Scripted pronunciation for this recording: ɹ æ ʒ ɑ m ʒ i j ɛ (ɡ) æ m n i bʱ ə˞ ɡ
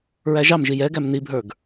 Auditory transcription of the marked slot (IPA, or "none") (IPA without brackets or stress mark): ɡ